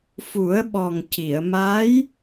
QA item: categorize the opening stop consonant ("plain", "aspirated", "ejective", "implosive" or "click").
implosive